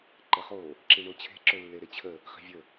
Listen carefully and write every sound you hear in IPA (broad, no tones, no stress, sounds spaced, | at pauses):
ǃ ɘ χ o | ǁ i ɳ o t͡ɕʰ e̤ ǁ ɵ lː e ɾ e t͡ɕʰ ə | χ i̤ vʲ ə